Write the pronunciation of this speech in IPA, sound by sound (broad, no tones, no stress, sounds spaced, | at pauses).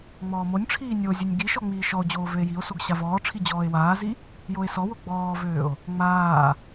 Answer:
ŋ͡m ɔː m o nʲ ʈ͡ʂʰ iː nʲ o zʲ ø nʲ ɡ i ʃ ɔ ŋ͡m iː ʃ ɔ o̯ d͡ʑ oː v ø e̯ j i o̯ s o ɡ ɕ a v ɔː ʈ͡ʂʰ i d͡ʑ ɔː e̯ w aː z i | j o e̯ s ɔ w o ɡ͡b ɔː v øː o̯ | ŋ͡m aː